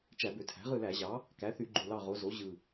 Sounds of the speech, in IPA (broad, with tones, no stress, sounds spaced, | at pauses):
t͡ʃ æ˧˩˧ b ø˩˧ tʰ æ̤˩˥ ʁ ɯ˦˨ l æ˧˩˧ ʑ ɑ˩˥ | k æ˩˥ θ y˧˩˧ ɡ͡ǃ u˨˩ l ɑ˦˨ ʁ o˩˧ z o˩˥ ʑ ɯ˨˩